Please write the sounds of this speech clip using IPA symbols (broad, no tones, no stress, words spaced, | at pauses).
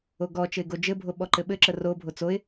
oɡɔ t͡ʃɘɪ̯ɡod͡ʒɘ bʱoɓɔǃɘɓɘ ǁəro bʱot͡soɪ̯